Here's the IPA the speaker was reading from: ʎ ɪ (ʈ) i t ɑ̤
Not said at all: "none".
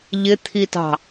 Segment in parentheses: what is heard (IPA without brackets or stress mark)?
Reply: t̪ʰ